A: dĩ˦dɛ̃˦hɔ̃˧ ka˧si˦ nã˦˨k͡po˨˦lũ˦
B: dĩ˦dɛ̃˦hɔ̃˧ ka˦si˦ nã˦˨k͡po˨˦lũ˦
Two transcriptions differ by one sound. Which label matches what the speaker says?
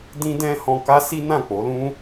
B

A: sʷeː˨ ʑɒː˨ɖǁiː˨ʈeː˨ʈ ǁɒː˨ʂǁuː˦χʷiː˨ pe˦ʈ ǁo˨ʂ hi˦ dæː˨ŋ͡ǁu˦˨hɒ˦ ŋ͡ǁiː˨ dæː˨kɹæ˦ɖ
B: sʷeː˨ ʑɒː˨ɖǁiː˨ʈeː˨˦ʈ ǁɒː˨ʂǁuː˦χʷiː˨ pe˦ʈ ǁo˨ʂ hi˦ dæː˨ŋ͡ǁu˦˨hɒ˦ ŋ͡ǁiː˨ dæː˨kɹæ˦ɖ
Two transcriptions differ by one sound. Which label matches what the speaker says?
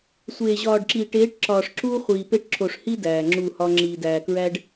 B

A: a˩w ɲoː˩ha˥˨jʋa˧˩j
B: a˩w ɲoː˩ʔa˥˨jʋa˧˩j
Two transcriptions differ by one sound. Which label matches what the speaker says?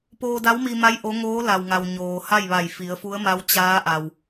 A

